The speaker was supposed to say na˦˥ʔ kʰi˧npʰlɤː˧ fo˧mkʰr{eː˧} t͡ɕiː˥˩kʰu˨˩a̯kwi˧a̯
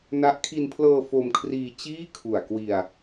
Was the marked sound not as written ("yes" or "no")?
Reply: yes